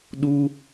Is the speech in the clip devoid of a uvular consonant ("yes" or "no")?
yes